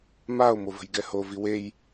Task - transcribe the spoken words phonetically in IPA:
mao̯ movə̤jɡɛho viwej

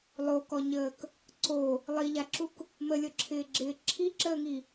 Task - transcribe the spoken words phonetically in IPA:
lˠokɔɲəːk | ǀo | lˠiʎaǁuk | məlʲɔǁʰɪːɡ͡ǁɪː ǁʰiǁəːŋi

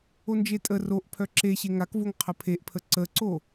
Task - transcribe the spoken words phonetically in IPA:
ond͡ʒetʼə roʔ pʰœǁe ɕeŋakvoŋ qʰəpʰeʔpʰə ǀəǀo

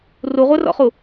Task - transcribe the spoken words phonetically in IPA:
ruʁʷɛrɔ̰χu

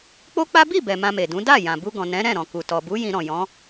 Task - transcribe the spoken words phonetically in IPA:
k͡po˦k͡pa˦ bi˦˨ bɛ˨ mã˧me˨dũ˨˦ da˦˨ jã˨bu˧ɡɔ̃˨ nɛ̃˨˦ɾɛ̃˦˨ ɾɔ̃˨ku˨tɔ˨ bu˨˦ jĩ˧ɾɔ̃˨ jɔ̃˨˦

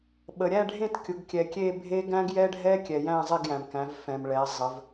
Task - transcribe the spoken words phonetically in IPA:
ɓə˩ɾʲæ˥˨ɖʱẽ˥˨t kʲʊ˩˧ɡ kʲɛ˩kʲe˥˨bʱe˦˥ ɡæ̃˦˥ɡjɛ˦˥ɖʱɛ˦˥kʲɛ˩ jæ̃˥˨zˤe˥˨ɡjæ̃˩mkæ̃˩˧v fɛ̃˩mɭɛ˩˧ zˤə˩˧v

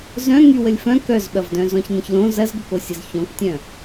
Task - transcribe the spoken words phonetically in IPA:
zœ̃ ŋywəlʲfœ̃ kœzɓɐvdœ̃ zɔ̃çnə̃çlõ zɐzɡəkosʲəz çɔ̃ktʲœ̃

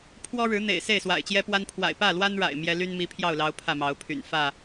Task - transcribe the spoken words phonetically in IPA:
pʰwɔ˦ ɻɻ̩˨˦n̪ḛ˨˩ɪ̯ se˥˨ɪ̯swa̰˨˩ɪ̯t͡ɕjɛ˦pwa˦n pʰwa̰˨˩ɪ̯pä˥˨lwa˦nɻa̰˨˩ɪ̯ mjɛ˦ ly˦nmi˨˦pʰjɑ˥˨ʊ̯lɑ˨˦ʊ̯ pʰä˥˨mɑ˨˦ʊ̯pʰy̰˨˩n fä˥˨

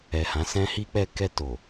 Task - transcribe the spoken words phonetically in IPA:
ɛ˨hã˨˦ sɛ̃˦ hi˧k͡pɛ˧kɛ˧ to˨

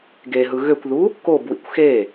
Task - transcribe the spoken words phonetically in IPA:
ɡeɦɯ ɣøkʷðu | kobwḭkʷ xe

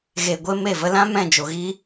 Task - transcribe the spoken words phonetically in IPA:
ɣe˨ɡʷe˧ me˦˨və˦ lã˦ mɛ̃˦˨d͡ʒo˨ɣi˦

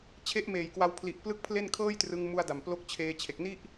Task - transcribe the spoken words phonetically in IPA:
t͡ɕʰe˦˥ʔmeː˨˩jkwa˧wpʰli˨˩ʔ plɯ˥˩k̚pʰle˥˩n kʰɤː˥˩jtrɯ˧ŋmu˧a̯ da˨˩mplo˦˥k̚ t͡ɕʰeː˧t͡ɕʰe˨˩k̚ni˥˩ʔ

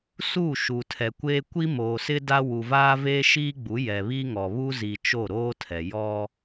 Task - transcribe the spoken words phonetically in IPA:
su˦˨ ʃu˨tʰɛ˨kʷeː˦ kʷi˦moː˨sɪ˦ da˦ wu˨vaː˦veː˦ ʃiː˦ ɡ͡bu˨˦ jɛ˨βi˦ŋɔ˨ βu˦zi˨t͡ʃo˦˨ ɾoː˦tʰɛ˨ jɔ˦

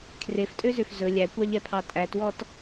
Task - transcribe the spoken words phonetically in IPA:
kʰreftʼøzøf zɵ lʲækʷɑʎɛpʰɑ tʼætwɔt

